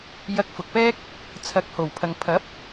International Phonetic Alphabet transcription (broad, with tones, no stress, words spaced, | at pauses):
jɐ˧k̚fʊ˨k̚pɛː˥k̚ | t͡sʰɐ˨k̚ho˨˩wpʰɐ˨ŋ pʰɐ˨˥p̚